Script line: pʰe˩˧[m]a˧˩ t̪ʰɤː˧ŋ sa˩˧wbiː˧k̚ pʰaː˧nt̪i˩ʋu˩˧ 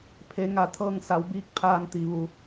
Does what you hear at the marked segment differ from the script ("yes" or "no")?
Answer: yes